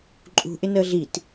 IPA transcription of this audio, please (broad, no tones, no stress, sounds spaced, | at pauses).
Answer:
ǃʼ ṳ ʔ ɪ n əː ɮ i t